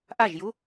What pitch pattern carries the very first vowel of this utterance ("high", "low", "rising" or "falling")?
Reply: falling